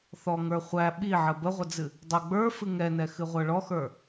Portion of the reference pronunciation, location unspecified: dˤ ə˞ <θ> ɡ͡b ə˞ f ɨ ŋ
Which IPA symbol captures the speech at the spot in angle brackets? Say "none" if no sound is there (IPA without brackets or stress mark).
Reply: none